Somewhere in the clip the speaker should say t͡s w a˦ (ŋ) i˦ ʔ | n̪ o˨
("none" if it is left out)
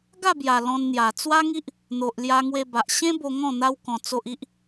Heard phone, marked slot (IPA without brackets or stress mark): ŋ